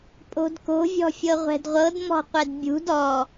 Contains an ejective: yes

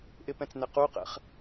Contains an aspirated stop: no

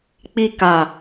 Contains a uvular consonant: no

